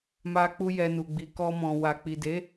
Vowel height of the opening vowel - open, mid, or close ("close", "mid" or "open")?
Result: open